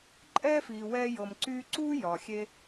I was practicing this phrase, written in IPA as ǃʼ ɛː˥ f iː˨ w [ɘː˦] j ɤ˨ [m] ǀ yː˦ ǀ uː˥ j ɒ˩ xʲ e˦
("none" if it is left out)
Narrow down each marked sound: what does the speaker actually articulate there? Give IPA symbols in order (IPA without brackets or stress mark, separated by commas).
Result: ɛː˦, m